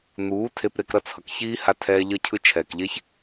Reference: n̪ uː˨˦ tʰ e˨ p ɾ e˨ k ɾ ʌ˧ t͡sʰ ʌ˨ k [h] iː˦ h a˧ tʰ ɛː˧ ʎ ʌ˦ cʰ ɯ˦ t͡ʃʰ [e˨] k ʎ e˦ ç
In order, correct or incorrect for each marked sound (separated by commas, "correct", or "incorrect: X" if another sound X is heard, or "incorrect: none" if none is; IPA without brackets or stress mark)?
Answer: incorrect: ç, incorrect: ɛ˨